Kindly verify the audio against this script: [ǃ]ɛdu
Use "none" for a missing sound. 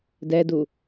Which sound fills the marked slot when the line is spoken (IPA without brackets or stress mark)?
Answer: d